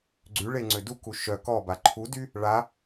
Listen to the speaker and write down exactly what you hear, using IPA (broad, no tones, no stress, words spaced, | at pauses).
ɡ͡ǀyɭe ŋ͡ǀøduku ʃœ kɔba ǃʰudy | ɭa